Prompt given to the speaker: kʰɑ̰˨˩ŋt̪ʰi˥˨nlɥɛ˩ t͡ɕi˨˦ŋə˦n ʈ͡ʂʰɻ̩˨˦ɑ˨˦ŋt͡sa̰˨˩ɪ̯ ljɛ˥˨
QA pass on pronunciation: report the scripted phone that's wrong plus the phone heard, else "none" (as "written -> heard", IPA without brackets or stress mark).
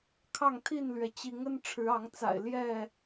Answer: ɑ̰˨˩ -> ɑ˥˨